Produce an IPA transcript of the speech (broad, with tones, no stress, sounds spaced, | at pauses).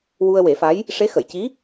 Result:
w u˧ ə̯ w e˨˩˦ f a˧˥ j | ʂ e˧˥ x ə˨˩˨ j c i˧˥